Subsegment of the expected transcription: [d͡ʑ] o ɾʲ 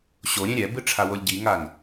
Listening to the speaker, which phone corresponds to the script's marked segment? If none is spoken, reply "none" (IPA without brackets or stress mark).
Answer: ɕ